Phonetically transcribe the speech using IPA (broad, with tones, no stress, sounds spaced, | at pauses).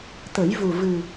t̪ ə˨˩˦ j v u˨˩ v ɨ˨˩